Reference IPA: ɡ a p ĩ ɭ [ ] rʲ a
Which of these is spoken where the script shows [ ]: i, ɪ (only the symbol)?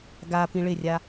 ɪ